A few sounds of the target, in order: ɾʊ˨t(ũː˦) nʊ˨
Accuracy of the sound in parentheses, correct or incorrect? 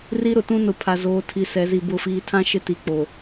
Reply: incorrect: ũ˦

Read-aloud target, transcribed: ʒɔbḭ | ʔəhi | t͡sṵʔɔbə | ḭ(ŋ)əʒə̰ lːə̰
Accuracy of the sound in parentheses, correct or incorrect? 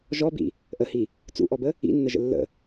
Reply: incorrect: nː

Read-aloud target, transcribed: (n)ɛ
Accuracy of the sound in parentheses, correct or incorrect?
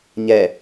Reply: incorrect: ɲ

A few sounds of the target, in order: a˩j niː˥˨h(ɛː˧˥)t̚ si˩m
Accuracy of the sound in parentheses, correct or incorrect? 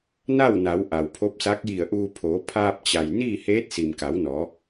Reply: incorrect: eː˧˥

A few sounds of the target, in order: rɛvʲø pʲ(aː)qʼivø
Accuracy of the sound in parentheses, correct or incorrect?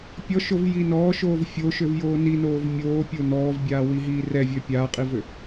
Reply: correct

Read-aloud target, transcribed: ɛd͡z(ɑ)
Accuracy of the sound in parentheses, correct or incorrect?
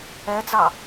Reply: correct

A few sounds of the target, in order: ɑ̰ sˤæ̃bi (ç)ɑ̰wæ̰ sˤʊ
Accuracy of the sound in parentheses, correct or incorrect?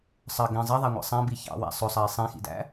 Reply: correct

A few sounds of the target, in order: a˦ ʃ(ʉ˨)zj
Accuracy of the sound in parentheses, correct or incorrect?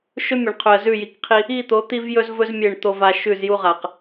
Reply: incorrect: ʉ˦˨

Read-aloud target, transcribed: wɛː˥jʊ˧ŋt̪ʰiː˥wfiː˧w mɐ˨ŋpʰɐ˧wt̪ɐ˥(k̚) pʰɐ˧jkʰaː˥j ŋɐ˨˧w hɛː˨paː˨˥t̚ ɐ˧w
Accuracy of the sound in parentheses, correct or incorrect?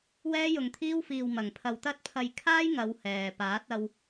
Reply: incorrect: t̚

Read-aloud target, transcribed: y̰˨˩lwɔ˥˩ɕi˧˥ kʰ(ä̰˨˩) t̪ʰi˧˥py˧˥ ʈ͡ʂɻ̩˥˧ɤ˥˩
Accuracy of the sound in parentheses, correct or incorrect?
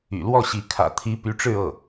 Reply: correct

